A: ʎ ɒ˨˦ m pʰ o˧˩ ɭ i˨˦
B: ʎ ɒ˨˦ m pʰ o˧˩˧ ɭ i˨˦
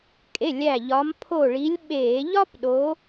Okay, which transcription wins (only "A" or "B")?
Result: A